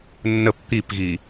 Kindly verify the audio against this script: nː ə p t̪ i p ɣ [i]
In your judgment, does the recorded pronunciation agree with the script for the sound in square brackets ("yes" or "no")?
yes